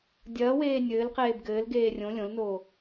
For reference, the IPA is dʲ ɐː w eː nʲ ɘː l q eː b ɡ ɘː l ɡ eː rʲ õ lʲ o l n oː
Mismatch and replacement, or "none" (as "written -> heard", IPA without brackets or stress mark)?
o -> õ